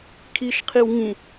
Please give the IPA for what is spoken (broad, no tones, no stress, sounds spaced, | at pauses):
kʰ i ʃ qʰ i w ŋ ĩ